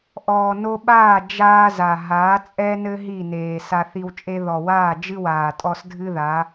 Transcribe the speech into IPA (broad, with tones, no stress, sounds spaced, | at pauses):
ʔ ɔː˨ n o˧ ɓ aː˦˨ d͡ʒ aː˦ z a˨ ɦ aː˨˦ t͡sʼ ɛ˦ n ɘ˦ ɦ i˦˨ n eː˨ s a˧ θ i˧ w t͡ʃʼ e˦ ð ɔ˨ w aː˦˨ d͡ʒ ɨ˦ w aː˨ tʼ ɔ˧ s dʱ ɨ˦ ð a˨˦